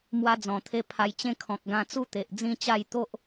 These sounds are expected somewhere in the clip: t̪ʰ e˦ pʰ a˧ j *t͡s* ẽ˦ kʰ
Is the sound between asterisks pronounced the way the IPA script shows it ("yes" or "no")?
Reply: no